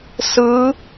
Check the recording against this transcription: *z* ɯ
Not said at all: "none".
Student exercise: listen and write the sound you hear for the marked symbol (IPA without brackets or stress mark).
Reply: s